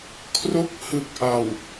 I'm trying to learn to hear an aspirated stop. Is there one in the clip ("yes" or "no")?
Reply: yes